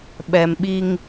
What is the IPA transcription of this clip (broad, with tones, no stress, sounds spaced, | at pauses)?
ɓ ɛ˨ m ɓ i˦ ŋ